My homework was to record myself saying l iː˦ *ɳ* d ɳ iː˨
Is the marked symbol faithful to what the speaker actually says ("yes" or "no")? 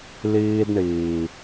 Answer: no